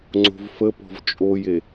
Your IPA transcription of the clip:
ŋ͡ǀo̤vfə pɔ̤vt͡ʃʼoje

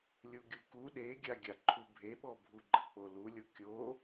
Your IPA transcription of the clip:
lʲuɡʲuku ɗeɡʲaɡʲaǃʰu bʱeɓɔbʱuɡ͡ǃə k͡polulʲo kʲo

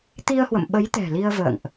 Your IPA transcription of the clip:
t̪i˧ə̯hwə̰˧˨m ɓə˨˦jt̪ɛ̤˨˩ li˧ə̯və̰ː˧˨ŋʔ

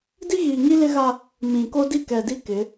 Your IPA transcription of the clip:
di˦ɣiː˨ŋi˦ lɪ˦ɣa˦ | mĩ˨ ko˦di˦˨kɛ˨di˦ kɪ˨˦

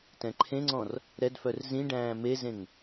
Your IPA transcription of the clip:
tɛ̃ǃʰẽŋ͡ǀɔ̃r | ɾɛdfœr zĩ ɖæ̃ːmezẽŋ

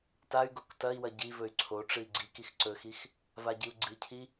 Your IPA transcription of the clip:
tay̯ɡok tɐi̯wɐ ɟivɵy̯ ǀʰoʈ͡ʂɨi̯ ɡ͡ǀik ixǀɵxix | vaɟiu̯ɡ͡ǀɨcʰi

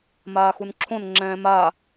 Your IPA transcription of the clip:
maːxunǁʰõn ŋ͡ǁɛ̃ːma

